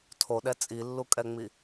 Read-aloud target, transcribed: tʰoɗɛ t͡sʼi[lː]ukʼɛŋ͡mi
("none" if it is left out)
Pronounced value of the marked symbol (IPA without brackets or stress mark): lː